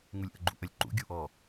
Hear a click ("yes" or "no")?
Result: yes